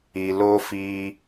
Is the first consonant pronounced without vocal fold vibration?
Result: no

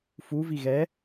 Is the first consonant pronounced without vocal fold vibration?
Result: yes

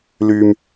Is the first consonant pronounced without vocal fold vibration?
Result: no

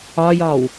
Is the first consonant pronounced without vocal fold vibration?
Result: no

